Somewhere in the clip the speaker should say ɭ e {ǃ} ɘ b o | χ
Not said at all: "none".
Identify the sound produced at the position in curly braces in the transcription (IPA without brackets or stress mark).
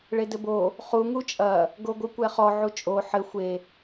d